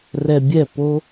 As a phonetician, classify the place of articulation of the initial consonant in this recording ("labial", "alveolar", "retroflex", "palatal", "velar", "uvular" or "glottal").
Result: alveolar